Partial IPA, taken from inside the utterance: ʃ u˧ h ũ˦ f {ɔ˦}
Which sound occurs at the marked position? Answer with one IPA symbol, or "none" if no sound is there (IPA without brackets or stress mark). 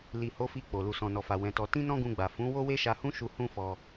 ɔ˧